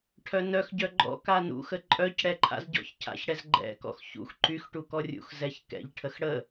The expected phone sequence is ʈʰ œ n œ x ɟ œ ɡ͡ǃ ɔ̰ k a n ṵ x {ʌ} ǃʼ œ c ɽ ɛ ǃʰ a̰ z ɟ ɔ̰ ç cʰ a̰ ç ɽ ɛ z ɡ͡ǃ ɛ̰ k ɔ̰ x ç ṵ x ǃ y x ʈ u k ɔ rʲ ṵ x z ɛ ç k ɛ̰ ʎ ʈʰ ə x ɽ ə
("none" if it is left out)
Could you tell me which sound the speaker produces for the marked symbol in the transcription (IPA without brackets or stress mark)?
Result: ə